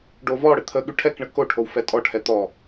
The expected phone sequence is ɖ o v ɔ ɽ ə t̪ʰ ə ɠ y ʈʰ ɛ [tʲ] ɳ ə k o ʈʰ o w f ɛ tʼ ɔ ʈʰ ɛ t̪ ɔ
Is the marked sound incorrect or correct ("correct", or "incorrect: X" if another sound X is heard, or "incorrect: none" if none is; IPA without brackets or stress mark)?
incorrect: k